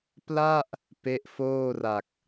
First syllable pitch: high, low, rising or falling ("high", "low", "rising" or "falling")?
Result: falling